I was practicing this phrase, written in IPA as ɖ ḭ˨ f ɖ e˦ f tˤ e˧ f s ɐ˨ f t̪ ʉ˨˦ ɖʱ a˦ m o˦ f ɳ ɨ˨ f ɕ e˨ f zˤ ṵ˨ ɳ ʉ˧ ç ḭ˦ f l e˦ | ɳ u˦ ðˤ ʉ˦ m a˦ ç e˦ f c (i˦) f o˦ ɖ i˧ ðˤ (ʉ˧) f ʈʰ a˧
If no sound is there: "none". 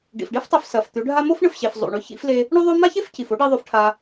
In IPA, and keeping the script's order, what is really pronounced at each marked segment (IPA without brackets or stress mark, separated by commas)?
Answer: i˨, ʉ˧